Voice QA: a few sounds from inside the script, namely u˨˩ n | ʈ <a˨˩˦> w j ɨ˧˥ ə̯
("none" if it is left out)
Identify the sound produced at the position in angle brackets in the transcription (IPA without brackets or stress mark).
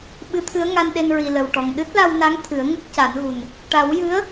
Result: a˨˩˦